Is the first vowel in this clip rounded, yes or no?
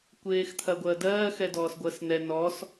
no